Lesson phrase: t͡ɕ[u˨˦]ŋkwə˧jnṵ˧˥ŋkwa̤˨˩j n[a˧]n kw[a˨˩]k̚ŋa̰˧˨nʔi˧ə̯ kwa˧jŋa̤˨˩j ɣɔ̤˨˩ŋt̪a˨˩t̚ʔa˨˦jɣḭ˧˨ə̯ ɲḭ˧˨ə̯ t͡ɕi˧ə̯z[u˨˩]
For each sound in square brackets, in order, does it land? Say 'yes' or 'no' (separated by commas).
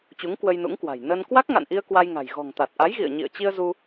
yes, no, no, no